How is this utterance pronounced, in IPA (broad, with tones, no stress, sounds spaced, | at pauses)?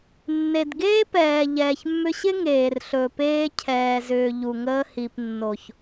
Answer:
nː e˨ d ɡ eː˦ p ɛː˨ ʎ ɛː˨ ç mː ʏ˧ ɕ ɪ˦ ŋ eː˨ r ɬ ɵ˨ p eː˧ cʰ ɛː˨ z ʏː˨ ʎ u˨ ŋ əː˧ h i˨ p nː o˨ ç